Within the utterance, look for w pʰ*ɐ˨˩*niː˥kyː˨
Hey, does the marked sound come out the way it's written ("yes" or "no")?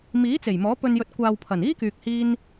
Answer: yes